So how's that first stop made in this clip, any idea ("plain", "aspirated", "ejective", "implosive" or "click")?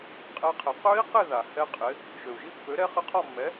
ejective